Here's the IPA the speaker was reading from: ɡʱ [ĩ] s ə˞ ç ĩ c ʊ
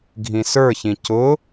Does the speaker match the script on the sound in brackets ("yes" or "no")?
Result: yes